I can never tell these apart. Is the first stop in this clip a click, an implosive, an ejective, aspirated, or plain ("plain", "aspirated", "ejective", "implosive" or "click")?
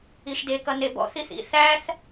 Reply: plain